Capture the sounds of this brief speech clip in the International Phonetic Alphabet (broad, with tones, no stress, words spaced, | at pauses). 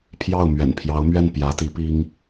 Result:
pʰjɑ˥˩ʊ̯mɥɛ̰˨˩npʰjɑ˧˥ʊ̯mɥɛ˥˩n pjä˧˥t̪i˧˥ pi˥ŋ